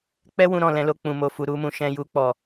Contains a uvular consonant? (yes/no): no